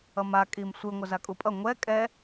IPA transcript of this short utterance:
ʌma kʼimsʷɯ ŋʷʌzakʼupʼʌ ŋʷɛ kʼɛ

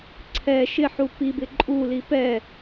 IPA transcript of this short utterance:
ǀʰɛ ʃɪħu pi bɪǃʼuli pɛ

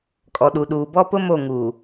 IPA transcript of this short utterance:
kʼɔ˨ɗu˨ɗuː˨ bɔ˦pʊ˦ mo˦˨ ŋuː˨

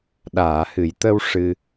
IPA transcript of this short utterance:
ɗaː˨˩˨hɨ˨˩˨jt̪ə˧w ʂɨ˧

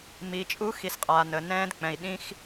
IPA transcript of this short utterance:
mi˨˦t͡ʃʼu˦ xi˨˦sqʼaː˨nəː˨ nɛ̃ː˦dk͡pɛ̃˨i̯ ɗĩ˦x

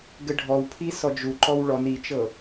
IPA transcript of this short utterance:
ɡɘɖʱɔwpʰi sɔd͡ʒuǃɔw ɭɔn it͡ʃɤ

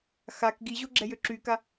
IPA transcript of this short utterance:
xak ɡiʑoɡ͡ǁɛjø ǁyka

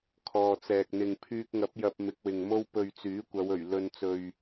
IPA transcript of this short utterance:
kʰɔː˨t͡sɛː˨k̚n̪ɪ˨ŋ pʰyː˧k̚ŋɐ˨˥p̚ jɐ˧p̚ mɪ˨˥k̚wɪ˨ŋmo˥w pɵ˨ɥ t͡syː˨˥kʷɐ˨˧wɵ˨˩ɥ lɵ˨n t͡sɵ˨ɥ

